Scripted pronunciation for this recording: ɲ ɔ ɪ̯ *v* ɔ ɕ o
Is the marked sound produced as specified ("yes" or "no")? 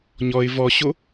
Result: yes